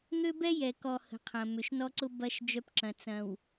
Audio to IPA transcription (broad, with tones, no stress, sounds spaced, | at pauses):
ŋ ø˦ b ɛ˦ j ɛ˨ k ɔ˨ h ə̤˨˦ qʰ ɐ̃˨ m ʏ˨ ʃ n ɔ˦ ǀ ʊ˦ b ɐ˦ ʃ d͡ʒ œ˦ p ǁ ɐ̃˨ t͡s ɐ̃˨ w